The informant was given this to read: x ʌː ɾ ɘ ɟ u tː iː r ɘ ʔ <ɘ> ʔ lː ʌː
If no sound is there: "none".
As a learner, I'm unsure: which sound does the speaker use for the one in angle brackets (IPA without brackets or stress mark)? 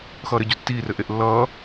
e